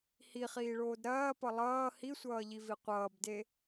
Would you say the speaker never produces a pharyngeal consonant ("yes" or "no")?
yes